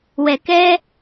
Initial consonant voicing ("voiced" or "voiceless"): voiced